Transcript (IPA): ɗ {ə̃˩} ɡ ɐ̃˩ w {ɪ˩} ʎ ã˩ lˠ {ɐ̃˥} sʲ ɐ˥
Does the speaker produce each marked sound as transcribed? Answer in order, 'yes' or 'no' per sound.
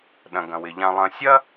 no, yes, no

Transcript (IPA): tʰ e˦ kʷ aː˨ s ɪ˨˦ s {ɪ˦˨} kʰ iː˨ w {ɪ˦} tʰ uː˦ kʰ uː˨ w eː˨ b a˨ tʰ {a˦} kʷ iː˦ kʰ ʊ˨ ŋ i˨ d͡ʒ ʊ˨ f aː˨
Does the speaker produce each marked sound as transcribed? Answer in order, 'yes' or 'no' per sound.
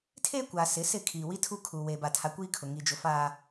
yes, no, no

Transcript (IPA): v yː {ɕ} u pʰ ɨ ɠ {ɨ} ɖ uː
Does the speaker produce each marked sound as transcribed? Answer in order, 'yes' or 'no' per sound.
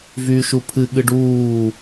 no, yes

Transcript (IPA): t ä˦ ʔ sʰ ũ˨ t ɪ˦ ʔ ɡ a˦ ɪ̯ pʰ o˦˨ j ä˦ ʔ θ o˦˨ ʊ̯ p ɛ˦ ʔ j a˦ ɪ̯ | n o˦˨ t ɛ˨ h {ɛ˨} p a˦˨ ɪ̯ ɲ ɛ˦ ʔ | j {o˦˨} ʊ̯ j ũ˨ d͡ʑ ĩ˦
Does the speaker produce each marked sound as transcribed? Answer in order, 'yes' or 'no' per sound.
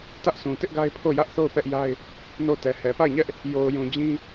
yes, no

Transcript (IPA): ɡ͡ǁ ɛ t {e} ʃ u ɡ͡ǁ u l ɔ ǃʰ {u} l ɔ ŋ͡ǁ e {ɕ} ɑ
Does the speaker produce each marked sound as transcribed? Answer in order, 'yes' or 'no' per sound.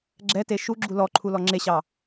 yes, yes, yes

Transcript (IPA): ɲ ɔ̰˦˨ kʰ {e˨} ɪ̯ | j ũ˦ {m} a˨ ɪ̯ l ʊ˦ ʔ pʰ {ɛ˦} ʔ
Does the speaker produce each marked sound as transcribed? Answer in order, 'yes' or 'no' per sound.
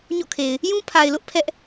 yes, no, yes

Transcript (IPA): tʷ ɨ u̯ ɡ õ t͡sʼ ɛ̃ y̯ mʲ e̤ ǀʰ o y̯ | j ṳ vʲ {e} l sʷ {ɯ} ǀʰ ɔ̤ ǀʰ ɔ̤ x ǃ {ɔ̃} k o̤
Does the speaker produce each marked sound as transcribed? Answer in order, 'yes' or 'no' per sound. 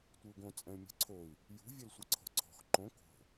no, no, no

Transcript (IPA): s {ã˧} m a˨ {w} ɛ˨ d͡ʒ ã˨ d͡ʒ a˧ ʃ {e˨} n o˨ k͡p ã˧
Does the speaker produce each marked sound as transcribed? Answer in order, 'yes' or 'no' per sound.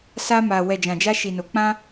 no, yes, no

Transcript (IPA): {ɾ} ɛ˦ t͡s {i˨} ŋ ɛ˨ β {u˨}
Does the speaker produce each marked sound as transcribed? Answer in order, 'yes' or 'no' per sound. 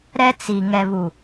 yes, yes, yes

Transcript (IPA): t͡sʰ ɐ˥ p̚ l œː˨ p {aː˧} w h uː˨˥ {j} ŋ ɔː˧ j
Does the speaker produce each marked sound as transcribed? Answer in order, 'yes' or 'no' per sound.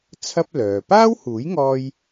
no, yes

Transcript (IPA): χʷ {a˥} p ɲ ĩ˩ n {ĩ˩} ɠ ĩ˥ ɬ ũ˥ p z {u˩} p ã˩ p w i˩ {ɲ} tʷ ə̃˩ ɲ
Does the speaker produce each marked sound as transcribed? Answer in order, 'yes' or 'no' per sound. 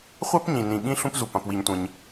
yes, yes, yes, yes

